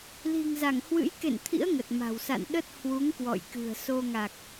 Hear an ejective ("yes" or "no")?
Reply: no